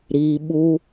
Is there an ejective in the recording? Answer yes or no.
no